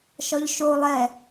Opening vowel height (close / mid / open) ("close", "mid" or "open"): open